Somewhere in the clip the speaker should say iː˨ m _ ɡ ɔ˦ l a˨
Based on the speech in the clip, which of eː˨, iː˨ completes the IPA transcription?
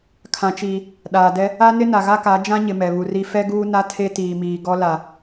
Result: iː˨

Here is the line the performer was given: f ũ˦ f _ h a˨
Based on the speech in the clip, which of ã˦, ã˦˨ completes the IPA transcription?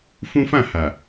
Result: ã˦˨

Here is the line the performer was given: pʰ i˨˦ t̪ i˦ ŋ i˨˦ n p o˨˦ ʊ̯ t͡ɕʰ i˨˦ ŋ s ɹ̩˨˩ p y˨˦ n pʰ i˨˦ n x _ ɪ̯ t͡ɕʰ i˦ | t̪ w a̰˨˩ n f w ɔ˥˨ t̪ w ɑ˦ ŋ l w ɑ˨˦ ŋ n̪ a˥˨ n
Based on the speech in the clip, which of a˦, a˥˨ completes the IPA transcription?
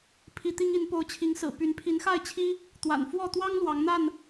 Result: a˥˨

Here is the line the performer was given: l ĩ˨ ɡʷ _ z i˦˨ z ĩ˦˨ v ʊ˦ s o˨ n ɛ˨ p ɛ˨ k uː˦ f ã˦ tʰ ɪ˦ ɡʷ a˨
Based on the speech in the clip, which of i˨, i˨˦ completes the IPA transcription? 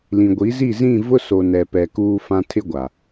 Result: i˨˦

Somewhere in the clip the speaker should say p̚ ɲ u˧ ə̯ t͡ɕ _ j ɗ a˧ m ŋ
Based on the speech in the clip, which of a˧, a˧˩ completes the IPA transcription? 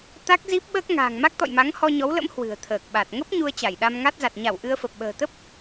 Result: a˧˩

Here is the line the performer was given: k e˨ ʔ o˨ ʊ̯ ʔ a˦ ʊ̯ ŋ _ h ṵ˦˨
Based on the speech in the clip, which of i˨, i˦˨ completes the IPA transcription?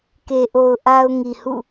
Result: i˨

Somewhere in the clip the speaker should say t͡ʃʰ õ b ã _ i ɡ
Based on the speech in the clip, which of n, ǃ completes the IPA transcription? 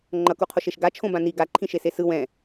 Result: n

